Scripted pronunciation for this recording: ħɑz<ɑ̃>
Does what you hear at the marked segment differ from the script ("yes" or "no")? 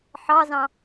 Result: no